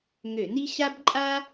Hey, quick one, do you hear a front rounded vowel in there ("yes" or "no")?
yes